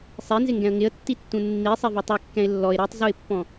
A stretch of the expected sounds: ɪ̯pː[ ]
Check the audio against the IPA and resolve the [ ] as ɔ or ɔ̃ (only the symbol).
ɔ̃